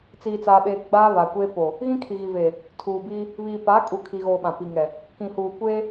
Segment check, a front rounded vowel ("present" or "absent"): absent